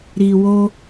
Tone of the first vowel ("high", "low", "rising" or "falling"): low